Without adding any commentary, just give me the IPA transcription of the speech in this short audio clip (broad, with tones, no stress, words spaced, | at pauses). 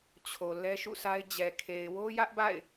t͡ɕʰo˨ lɛ˦ʃṵ˦˨sʰa˦ɪ̯ d͡ʑɛ˨kʰe˨ɪ̯ wo˦jä˦ʔba̰˦˨ɪ̯